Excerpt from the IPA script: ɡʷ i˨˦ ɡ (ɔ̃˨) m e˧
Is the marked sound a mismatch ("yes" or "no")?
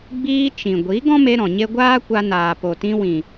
yes